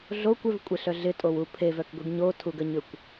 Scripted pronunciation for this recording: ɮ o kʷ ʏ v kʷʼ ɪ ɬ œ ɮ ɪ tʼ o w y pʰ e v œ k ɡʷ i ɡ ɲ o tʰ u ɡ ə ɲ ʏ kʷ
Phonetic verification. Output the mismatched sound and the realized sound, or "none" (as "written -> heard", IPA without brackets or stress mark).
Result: y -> u